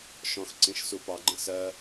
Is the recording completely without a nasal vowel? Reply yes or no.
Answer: no